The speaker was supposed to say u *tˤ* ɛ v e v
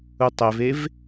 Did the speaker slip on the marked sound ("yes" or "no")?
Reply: no